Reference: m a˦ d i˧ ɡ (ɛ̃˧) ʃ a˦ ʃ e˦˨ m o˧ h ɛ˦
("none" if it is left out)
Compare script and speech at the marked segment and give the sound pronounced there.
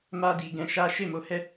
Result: ɛ̃˧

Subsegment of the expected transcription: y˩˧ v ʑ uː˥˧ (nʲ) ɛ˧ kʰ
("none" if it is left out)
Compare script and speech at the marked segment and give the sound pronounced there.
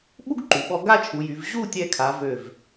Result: tʲ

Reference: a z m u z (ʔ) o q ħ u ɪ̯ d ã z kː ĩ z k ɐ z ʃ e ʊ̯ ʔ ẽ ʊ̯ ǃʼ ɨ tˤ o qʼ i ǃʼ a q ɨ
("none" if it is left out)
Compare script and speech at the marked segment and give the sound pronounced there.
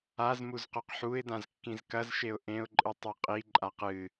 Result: q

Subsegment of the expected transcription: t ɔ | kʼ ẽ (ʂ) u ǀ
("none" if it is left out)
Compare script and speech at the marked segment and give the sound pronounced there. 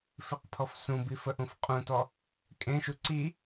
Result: ʃ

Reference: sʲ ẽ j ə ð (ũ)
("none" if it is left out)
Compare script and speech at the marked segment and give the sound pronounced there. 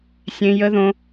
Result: õ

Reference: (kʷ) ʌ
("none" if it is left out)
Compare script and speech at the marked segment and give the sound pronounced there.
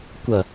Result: kʷ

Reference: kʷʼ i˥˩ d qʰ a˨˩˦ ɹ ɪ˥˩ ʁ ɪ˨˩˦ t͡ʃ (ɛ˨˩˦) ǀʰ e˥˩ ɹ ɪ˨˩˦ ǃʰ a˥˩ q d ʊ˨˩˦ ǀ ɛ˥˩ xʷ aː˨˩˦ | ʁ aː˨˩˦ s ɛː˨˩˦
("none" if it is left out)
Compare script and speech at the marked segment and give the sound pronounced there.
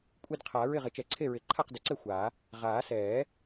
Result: ɛ˨˩˦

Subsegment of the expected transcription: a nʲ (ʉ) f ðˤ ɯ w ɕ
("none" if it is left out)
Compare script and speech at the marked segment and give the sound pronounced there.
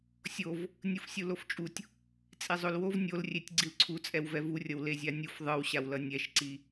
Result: u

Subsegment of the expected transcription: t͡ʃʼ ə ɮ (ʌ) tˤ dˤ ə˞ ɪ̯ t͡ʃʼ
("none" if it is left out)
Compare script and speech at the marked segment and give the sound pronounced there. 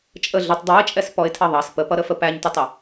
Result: ə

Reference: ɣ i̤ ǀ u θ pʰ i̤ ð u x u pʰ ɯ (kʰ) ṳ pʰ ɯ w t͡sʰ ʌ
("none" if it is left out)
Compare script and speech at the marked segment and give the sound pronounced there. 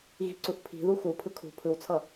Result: kʰ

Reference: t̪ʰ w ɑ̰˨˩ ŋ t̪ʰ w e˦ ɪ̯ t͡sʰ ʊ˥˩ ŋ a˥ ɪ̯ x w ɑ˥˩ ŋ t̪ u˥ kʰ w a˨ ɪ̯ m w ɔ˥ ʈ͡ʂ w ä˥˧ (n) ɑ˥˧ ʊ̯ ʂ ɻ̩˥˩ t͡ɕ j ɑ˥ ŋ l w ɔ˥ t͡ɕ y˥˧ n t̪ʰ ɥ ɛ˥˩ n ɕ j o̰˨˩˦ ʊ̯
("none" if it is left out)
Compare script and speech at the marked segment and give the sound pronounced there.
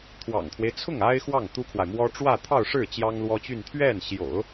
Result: t̪ʰ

